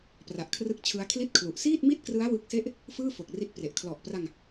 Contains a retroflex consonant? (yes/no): no